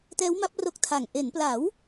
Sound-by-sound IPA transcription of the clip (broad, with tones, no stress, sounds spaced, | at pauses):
t ɛː˦˥ w m a˦˥ p̚ r o˦˥ k̚ tʰ aː˨˩ ŋ ʔ e˩˦ n p l a˩˦ w